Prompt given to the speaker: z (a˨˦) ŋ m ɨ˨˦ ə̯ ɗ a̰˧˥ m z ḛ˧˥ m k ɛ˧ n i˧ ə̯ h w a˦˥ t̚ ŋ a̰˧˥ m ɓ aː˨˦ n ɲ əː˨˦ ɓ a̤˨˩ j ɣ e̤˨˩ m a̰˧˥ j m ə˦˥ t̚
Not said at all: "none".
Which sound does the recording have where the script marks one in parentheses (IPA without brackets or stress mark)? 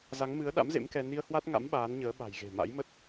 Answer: a˨˦